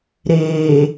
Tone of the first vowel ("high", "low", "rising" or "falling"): low